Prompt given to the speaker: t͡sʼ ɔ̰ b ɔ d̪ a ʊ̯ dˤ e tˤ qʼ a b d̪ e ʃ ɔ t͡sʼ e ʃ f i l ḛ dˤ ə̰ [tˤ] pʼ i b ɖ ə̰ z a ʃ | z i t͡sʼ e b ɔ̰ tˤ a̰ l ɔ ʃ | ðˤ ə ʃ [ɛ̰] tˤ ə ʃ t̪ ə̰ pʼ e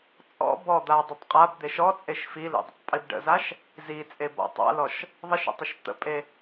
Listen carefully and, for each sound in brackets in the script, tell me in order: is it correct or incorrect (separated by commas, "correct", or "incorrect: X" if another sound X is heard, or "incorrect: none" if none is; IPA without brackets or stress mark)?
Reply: correct, incorrect: ə̰